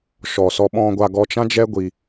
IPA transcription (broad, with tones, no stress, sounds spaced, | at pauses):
ʃ ɔ˨ s ɔ˧ ɓ ɔ̃˧ ɡʷ a˧ ɡ ɔ˧ t͡ʃ ã˦ d͡ʒ ɛ˦ ɡʷ i˧